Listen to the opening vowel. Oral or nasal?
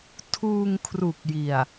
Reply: oral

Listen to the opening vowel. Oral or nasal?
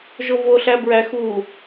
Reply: oral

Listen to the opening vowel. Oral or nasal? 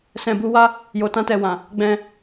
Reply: nasal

